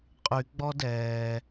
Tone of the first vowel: low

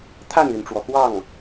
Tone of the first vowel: falling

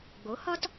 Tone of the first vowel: rising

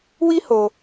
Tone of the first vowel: high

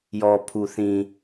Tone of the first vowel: low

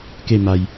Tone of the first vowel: falling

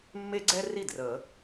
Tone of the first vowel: high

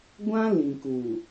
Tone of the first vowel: high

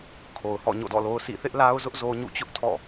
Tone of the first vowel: low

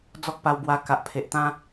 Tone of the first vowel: high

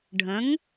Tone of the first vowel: rising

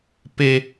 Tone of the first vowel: high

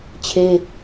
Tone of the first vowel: high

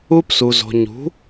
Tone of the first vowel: high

